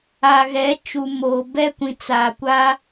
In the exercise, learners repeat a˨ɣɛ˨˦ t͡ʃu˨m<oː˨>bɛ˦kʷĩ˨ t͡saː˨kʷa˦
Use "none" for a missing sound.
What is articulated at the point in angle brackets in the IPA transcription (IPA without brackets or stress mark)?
oː˨